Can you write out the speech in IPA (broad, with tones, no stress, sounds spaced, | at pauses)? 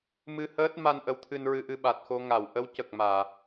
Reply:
m ɨ˧ h əː˦˥ t̚ m a˧ n ʔ ə˧˥ w t̪ʰ ɨ˧ n ɹ ɨ˧ ʔ ɨ˧ ɓ a˨˩ t̚ x o˧ ŋ a˨˩˨ w ʔ ə˧˥ w c ə˨˩ k̚ m aː˨˩˨